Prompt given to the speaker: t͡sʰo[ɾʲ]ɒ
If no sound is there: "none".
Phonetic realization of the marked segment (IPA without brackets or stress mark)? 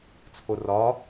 r